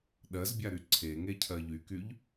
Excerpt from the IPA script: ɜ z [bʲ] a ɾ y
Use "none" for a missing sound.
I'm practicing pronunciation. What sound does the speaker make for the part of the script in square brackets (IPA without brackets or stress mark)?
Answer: bʲ